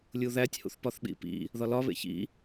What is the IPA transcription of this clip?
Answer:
lʲ u ð æ tʲ h ṵ θ p ɒ θ ɓ ḭ p ḭ | ð ɒ l ɒ β ḛ ç ḭ

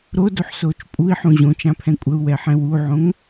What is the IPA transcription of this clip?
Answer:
ɾ o d o ħ s oː t͡ʃ pʼ u i̯ ħ ũ ʑ õ t͡ʃ ã pʰ ɛ̃ kʷʼ ə u̯ w ɛ ħ ɛ̃ w u ʕ õ ŋ

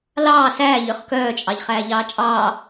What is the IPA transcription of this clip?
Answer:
l ɑː s æː ʎ ø χ k œː t͡ʃʼ ɑ ʎ χ æː ʎ ɑː t͡ʃʼ ɑː

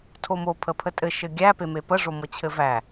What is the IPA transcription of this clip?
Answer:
tʰ o m o pʰ ə pʰ ə tʼ ɘ ʃ ɘ ɡʲ æ p e m e p ə ʐ o m ɤ t͡ɕʰ ɘ v æ

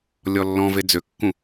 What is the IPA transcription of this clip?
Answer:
lʲ ɔ lː ɔ̃ v e d͡z ø kː ũ

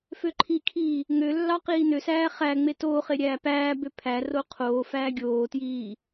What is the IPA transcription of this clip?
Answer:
f ø ǃʰ i kʰ iː | ŋ ø lː ɑ q iː n ø s æː χ æ ŋ͡m e t oː χ e ɾʲ æː p æː b ø pʰ æ r o qʰ oː f æː ɡʲ oː t j iː

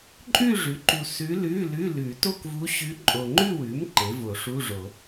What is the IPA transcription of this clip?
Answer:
ǃʼ ʉ˥˧ ʐ ʉ˩˥ ǃ u˨ s ʉ˧˥ l ʉ˧˥˧ l ʉ˧˥˧ l ʉ˨˩˦ t o˥˧ k v u˧˥ ɕ ʉ˧˥ ǃʼ o˨ ŋ͡ǃ ʉ˥˧ w ʉ˩˥ m ǃ e˩˥ v o˨˩˦ ʂ u˧˥˧ ʐ o˨˩˦

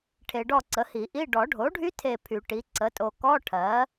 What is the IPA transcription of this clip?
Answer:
ʈʰ e˨ ɖ ɔ˦˨ ǀ ə˩˥ h i˨˩˦ ʔ i˧˥˧ ɖ ɔ˨˩˦ ɖʱ o˩˥ ɖʱ y˦˥ tʰ e˦˨ pʰ y˨˩˦ ʈ i˩˥ ǀ ə˩˥ tʼ o˨ k ɔ˧˥˧ ʈʰ ɜ˩˥

